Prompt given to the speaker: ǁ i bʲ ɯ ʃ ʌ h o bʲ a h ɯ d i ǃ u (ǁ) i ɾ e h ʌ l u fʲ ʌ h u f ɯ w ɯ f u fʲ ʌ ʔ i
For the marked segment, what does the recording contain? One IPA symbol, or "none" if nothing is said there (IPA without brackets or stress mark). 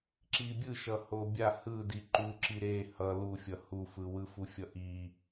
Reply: ǁ